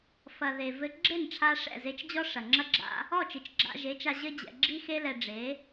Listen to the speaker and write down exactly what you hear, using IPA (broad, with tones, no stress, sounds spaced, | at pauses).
f ɐ˨ ð e˨ v ɘ˧ ɡ͡ǁ e˦˨ n ʈ͡ʂʰ a˧ ʂ ɛ̰˦˨ z e˧ t͡ʃ d͡ʑ ɔ˦ ʂ ɐ˨ ŋ͡ǁ ɐ˦ ɡ͡ǁ a̰˦ | ɔ˦˨ t͡ʃ ɨ˨ t͡ʃ ɡ͡ǁ a̰˧ ʒ e˨˦ t͡ʃ a˧ ʑ ɘ˦ d͡ʑ ɛ̰˧ ɡ͡ǁ i˦ x e˦ l ɛ˧ ɖ͡ʐ e˨˦